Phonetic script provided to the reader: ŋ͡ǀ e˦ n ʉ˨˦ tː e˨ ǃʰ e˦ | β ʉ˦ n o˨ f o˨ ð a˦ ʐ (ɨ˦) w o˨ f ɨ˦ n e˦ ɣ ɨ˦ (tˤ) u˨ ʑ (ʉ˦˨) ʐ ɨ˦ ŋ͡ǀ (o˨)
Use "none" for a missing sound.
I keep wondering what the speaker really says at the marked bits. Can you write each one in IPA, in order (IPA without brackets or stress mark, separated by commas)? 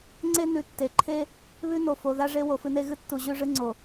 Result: e˦, tː, ʉ˦, o˨